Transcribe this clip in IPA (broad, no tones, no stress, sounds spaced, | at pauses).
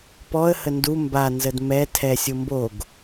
p ɔ ə̯ h ə n d u m b a n z ə d m ɛ tʰ ɛ sʲ ʊ m b o ɡ